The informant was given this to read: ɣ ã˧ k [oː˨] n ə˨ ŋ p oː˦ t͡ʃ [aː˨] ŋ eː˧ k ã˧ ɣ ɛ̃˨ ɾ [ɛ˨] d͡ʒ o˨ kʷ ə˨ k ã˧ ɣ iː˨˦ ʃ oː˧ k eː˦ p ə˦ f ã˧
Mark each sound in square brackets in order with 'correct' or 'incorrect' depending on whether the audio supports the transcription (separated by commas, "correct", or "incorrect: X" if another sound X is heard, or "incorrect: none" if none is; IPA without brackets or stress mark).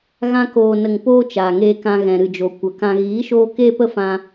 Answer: correct, correct, incorrect: ɨ˨